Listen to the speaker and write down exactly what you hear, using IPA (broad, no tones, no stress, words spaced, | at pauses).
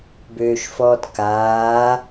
bøːʃfɔːtkaː